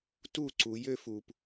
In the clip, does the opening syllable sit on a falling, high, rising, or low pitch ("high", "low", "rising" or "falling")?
falling